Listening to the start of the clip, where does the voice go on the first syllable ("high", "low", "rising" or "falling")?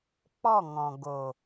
falling